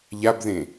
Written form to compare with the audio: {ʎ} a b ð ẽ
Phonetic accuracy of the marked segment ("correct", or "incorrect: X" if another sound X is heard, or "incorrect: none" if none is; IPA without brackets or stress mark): correct